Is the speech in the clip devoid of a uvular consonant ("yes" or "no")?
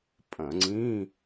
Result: yes